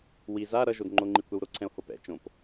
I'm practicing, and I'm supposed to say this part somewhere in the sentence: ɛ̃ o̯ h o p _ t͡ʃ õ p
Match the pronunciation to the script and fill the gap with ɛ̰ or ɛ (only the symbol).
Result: ɛ̰